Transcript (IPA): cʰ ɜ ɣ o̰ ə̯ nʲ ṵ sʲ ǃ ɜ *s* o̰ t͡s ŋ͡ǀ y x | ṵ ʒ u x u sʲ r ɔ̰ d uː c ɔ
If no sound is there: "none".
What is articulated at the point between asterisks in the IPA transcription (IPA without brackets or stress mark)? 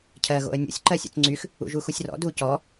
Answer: sʲ